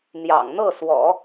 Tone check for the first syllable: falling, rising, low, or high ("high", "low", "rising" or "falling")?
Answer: low